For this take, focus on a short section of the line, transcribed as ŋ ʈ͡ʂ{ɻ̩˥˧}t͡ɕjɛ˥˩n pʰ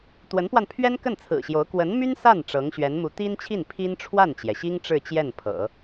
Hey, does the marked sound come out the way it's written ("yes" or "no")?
yes